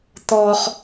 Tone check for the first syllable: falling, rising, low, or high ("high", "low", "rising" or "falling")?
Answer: high